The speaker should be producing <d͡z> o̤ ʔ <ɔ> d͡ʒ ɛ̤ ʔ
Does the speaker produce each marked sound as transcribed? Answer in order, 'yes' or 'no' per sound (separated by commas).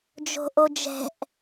no, no